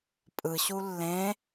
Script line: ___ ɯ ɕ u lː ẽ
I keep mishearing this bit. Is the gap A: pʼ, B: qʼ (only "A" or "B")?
A